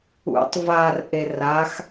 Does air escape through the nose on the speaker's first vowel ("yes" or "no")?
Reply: no